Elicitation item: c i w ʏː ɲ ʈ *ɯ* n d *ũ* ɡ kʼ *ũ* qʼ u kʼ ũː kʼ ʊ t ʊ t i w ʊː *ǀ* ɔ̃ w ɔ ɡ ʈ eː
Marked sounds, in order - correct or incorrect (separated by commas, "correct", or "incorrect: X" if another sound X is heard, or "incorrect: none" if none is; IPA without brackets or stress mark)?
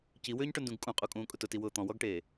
incorrect: ʊ, correct, correct, incorrect: t̪